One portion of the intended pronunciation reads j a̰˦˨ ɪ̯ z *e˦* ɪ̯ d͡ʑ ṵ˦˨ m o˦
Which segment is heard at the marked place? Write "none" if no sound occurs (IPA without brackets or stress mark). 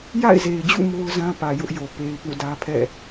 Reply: e˨